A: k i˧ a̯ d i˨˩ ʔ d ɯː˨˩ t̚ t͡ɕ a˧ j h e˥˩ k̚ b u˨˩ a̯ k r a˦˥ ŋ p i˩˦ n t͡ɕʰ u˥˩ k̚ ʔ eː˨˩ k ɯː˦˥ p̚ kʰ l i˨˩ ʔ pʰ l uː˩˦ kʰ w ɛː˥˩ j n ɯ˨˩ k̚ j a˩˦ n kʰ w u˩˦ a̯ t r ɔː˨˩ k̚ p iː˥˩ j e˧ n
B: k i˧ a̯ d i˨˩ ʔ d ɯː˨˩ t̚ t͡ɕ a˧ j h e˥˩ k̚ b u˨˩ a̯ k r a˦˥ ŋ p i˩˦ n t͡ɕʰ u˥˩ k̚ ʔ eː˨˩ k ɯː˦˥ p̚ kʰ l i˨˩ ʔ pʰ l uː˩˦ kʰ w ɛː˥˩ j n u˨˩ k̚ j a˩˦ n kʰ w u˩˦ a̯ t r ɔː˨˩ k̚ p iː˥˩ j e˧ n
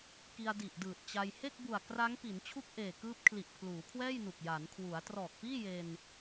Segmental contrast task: B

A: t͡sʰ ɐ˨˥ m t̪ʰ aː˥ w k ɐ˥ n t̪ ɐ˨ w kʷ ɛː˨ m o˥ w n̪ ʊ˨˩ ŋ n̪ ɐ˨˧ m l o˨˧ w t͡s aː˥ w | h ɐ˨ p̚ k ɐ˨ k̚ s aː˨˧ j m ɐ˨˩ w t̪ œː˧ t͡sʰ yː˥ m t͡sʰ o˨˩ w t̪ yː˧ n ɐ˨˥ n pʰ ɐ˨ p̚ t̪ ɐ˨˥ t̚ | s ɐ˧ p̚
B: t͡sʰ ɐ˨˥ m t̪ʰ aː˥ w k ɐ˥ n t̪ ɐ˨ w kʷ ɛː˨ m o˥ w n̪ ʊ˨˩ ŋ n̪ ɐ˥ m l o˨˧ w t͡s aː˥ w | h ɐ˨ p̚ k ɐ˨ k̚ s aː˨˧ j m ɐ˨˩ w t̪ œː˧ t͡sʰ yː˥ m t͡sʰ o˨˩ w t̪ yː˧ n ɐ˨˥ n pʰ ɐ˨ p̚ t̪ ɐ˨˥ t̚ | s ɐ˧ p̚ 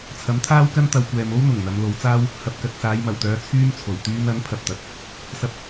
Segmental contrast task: A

